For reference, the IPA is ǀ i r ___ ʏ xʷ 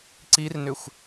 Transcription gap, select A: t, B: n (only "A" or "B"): B